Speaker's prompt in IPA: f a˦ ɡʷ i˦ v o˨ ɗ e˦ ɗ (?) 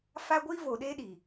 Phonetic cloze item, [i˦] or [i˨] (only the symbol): i˨